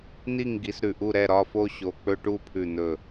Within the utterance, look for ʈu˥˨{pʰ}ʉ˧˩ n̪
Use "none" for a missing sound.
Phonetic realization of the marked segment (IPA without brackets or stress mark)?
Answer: pʰ